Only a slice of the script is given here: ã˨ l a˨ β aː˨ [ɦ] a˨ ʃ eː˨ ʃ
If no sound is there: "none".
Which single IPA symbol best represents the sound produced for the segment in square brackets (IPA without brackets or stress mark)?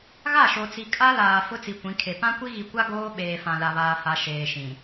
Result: h